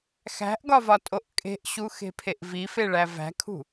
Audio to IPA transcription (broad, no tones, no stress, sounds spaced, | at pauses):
x æ̤ ʔ ɡ ɒ v ɒ tʼ o ʔ kʼ e̤ ʔ ɕ u x e̤ pʰ e ʔ v i f e ɭ æ v æ̤ kʰ ṳ